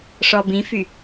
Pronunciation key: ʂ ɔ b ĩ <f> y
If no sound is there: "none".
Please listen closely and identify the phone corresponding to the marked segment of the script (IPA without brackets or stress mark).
f